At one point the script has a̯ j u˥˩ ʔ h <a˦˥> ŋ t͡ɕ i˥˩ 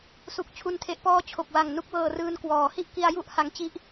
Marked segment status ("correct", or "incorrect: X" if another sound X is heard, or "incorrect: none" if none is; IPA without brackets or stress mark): correct